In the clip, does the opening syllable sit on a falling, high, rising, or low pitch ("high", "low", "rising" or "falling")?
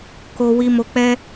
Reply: high